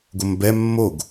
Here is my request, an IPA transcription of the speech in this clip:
ɡ o m b ɛ mː o ɡ

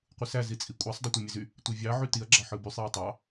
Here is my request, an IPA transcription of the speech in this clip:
qʷ ɯ s æ z i t͡sʼ i kʷʼ æ sˤ dˤ y tʷ e mʲ e z y | tʷ e vʲ ɑ ʕ y t i ɐ̯ ɡ͡ǁ ɑ ħ ɯ b y sˤ j e tˤ ɑ

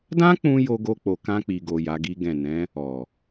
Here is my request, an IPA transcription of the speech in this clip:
d ã˦ k͡p ũ˧ j o˧ ɡ o˧ k͡p o˨ k ã˧ k͡p i˨ ɡ o˨ j a˨˦ ɡ i˦ ɡ ɛ̃˦˨ n ɛ̃˨˦ | ɔ˨

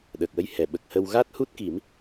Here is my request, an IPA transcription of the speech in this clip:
ɗ əː˨˩ k̚ w ə˧ j h ɛ˨˩˨ ɓ ə˨˩ k̚ h ə˧ w ɣ a˦˥ t̚ h u˦˥ t̚ k i˨˩˦ m

